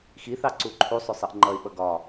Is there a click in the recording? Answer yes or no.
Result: yes